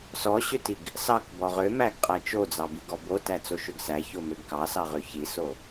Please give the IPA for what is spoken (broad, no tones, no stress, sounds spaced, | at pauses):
s ɔ ɕ ø t i ɡ | s ɑ k b ɔ ʁ ø m æ ɡ qʼ æ t͡ʃ o d͡z ɑ b i ɡ ɔ b o t æ t͡s o ʃ ø ɡ s æ ç o m ø ɡ k ɑ s ɑ ʁ ø ç i s o